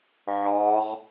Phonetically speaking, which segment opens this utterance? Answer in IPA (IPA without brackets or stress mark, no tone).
ʕ